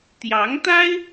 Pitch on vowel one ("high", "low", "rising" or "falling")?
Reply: rising